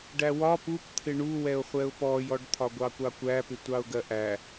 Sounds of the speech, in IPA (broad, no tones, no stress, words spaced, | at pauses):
ɖæwɒ pup t̪ʰɪɳuwɛʊ̯ χʷɛʊ̯pɔjɔɖ t̪ʰɒɡʷɑkʷɑkʷæ pɪtʷɑʊ̯ɡɜʔæ